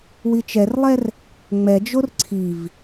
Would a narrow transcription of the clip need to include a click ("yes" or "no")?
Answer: yes